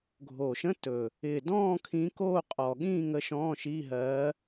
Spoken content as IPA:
ɡʱoː˨˩ʃə̃˧˥˧ tɵ˨˩ | ɪ˨˩dɔ̃ː˥˧ kʰĩ˧˥koː˥˧qʼɔ˨˩ɠĩː˥˧ ŋə˧˥ʃɔ̃ː˧˥˧ʃi˧˥˧ɦɜ˧˥

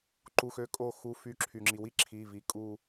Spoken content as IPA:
ǃu˩˧˩xø˧˩ kʼo˧˩xu˩˧˩ fy˧˩ ǁʰy˩ŋ͡ǁi˩ wi˦ǁʰi˩˧˩vi˩˧˩ kʼu˧˩

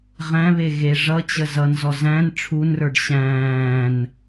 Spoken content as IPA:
ʁæ̃βe ɣe ʐʌt͡ɕə zʌnzɔ zæ̃n ʈ͡ʂʰunrə˞ɖ ɕæ̃ːn

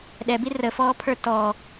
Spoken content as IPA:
ɗɛbi rəfɔːpʰə˞ tɔ

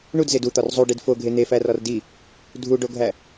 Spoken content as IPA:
ɳudzed ut̪ɒr zˤuɖid foɡʱe n̪efærɒr di | dʱuɖoɡʱæ

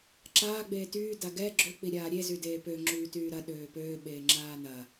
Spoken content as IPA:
ǁaːɡ͡beː tyː daɡɛ ɡ͡ǁøk͡pi ɾʲaːɾʲezy deːpø ŋ͡ǁyːtyːɾɐ ɗøːpøː ɓeːŋ͡ǁaːnɐ

